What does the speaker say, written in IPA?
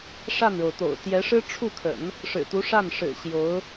ʂ a˥˩ n ɻ o˩ ʊ̯ t̪ o̰˨˩ ʊ̯ t̪ j ɛ˧˥ ʂ ɻ̩˥ ʈ͡ʂʰ u˥˩ kʰ ə̰˨˩˦ n | ʂ ɻ̩˨˩ t̪ u˧˥ ʂ a˥˩ n ʂ ɻ̩˨˩ ɕ j o˧˥ ʊ̯

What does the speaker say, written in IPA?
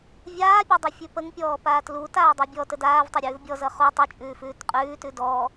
vʲ aː pʲ a dˤ ʌ fʲ ʉ p ə ŋ pʲ ɔː p aː t l u t aː dˤ i bʲ ɔ t ə d aː v tˤ ɘ ɾʲ ʉː v bʲ ɔ z ʌ χ u tˤ ʉ t͡ʃʼ ʉː f ʉː t qʼ ʉː t ʉ d ɔː

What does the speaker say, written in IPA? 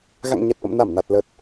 ɣ a̰˧˨ ŋ ɲ ɛ˨˩ t̚ ʔ ə̰˧˨ m n a˧˩ m n a˨˩ t̚ l ə˨˩ t̚

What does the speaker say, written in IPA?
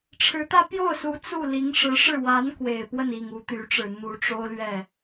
ʈ͡ʂʰ ɻ̩˧˥ t̪ ä˥ p j o˥˩ ʊ̯ s u˧˥ t͡s u˥˩ l i˧˥ ŋ ʂ ɻ̩˧˥ ʂ ɻ̩˥˩ w a˧˥ n k w e˨˩ ɪ̯ p w ə˥˩ n i˨˩ ŋ u˧˥ t̪ y˧˥ ʈ͡ʂ ɻ̩˨˩ n̪ u˧˥ ʈ͡ʂ o˥ ʊ̯ l ɥ ɛ˥˩

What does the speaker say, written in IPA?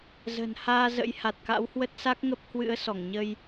z ə̤˨˩ n h aː˧ z ə̰˧˥ j h a˨˩ t̚ k a̰˧˥ w h w ə˦˥ t̚ s a˦˥ k̚ ŋ ə˦˥ p̚ h w ɨ̰˧˥ ə̯ s ɔ˧˩ ŋ ɲ ə˧ j

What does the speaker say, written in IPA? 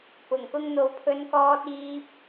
p ʊ˨˩ ŋ k ʊ˧ ŋ n̪ o˨ w pʰ ɵ˨ n k ɔː˨ t̚ iː˧ p̚

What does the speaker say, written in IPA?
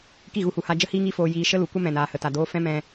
k i˦˨ ɣ u˦˨ h u˧ h a˧ d͡ʒ ə˦ h iː˦ ŋ i˦ f oː˧ j iː˧ ʃ ə˦ l u˨ kʷ ə˦ m ɛ̃˨ n aː˨ h ə˨ t a˨ d oː˧ f ɛ̃˦ m ɛ̃˧

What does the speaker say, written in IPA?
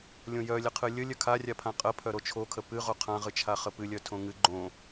lʲ õ j œ lʲ ə qʰ ɨ lʲ ə lʲ œ kʰ a rʲ a pʰ ã qʼ ə pʰ œ ɾ o t͡ʃʰ o kʰ ə p ɨ ʁ o qʰ ã ʁ ɨ t͡ʃʰ a χ ə p ɨ lʲ œ tʰ õ ŋ ɨ ɡ͡ǃ õ

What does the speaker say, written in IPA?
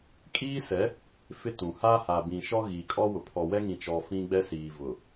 kʼ iː˦ s ɛ˨˦ | f ɪ˦ t ũ˨ h aː˦ h a˨ b ĩ˨ ʃ ɔ˦ ɣ iː˨ kʼ ɔ˦ w ʊ˨ pʰ ɔ˨ w ɛ˦ ŋ ĩ˨ t͡ʃ ɔ˨ f ĩ˦ ɡ͡b ɛ˦ s iː˨ v ʊ˨

